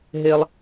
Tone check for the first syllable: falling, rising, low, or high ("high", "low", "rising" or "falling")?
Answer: high